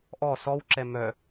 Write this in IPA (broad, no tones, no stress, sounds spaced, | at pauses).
ʔ ɔ s ɔ w ǁ ɛ m œ